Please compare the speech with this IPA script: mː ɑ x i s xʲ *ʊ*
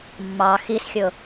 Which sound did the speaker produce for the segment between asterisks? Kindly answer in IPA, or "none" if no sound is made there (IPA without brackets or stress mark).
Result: ʊ